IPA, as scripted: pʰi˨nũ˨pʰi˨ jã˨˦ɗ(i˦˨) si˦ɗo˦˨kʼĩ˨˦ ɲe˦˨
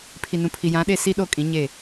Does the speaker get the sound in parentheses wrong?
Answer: yes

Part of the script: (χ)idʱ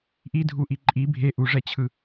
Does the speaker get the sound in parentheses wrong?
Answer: yes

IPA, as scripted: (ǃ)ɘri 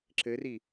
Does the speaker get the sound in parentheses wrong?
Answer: yes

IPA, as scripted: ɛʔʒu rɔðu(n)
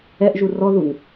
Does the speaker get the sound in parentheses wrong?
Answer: no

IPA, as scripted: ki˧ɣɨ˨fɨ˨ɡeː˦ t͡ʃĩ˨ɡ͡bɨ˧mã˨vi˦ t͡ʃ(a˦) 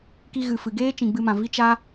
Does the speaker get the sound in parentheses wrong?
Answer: no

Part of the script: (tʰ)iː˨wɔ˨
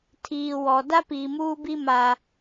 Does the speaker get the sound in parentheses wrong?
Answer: no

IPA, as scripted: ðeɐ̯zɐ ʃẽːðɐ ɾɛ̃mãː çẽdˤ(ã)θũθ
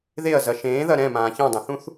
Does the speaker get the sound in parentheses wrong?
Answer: no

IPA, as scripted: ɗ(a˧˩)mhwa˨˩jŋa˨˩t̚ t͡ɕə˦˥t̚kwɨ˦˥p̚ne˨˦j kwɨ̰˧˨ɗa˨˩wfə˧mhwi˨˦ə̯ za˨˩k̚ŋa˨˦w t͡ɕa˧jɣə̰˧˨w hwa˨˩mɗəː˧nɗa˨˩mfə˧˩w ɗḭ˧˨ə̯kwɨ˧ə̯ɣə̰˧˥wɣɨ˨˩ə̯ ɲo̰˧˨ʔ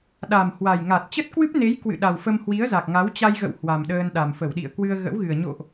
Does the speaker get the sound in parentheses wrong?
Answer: yes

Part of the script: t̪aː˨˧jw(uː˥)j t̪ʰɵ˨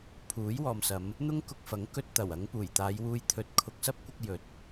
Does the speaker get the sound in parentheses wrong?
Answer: yes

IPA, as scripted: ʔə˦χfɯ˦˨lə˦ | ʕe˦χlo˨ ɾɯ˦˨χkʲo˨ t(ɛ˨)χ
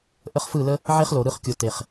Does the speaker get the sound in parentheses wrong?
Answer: yes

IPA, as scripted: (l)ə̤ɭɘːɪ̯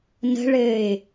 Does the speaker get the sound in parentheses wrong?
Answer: yes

